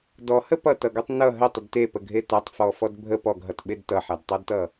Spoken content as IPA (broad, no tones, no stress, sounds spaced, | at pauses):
d ɔ h ə p ʌ t ʌ ɡ ʌ tˤ n ʌ ɦ ə tˤ ə d t e p ə ɡʱ e t a tˤ f ɔ f ɔ d bʱ ə p ɔ ɡ ɦ ʌ t ɓ e d t ʌ ħ a d tˤ ʌ d t ʌ